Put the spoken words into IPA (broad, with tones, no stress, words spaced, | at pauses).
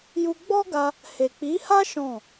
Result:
ju˧ ɡ͡bɔ˦ɡa˧ | he˨k͡pi˨˦ha˦ ʃɔ̃˦˨